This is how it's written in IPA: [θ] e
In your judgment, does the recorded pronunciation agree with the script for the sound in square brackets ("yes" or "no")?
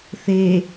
yes